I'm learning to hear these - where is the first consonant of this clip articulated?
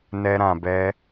tongue tip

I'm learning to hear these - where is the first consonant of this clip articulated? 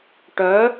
retroflex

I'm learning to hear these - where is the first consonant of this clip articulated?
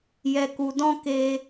palate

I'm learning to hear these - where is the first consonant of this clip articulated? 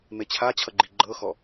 lips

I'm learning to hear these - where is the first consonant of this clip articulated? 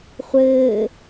uvula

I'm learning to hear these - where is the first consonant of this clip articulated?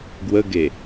velum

